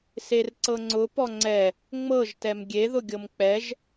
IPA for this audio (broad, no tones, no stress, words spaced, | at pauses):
serǀɤŋ͡ǀʊ pɔŋ͡ǀɛ | ŋ͡mɤʒ tɛmɡʲe ðʊɡʲɤmk͡pɛʒ